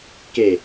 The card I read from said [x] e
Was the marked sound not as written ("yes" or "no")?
yes